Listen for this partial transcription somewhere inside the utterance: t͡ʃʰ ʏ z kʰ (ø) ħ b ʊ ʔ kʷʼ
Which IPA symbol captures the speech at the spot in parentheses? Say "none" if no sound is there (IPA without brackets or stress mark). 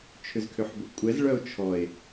ø